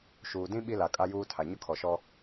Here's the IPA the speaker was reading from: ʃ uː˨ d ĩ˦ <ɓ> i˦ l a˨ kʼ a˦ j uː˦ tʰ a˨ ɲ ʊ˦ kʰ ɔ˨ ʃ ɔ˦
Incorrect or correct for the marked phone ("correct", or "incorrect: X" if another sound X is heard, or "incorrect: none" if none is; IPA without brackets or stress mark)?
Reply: correct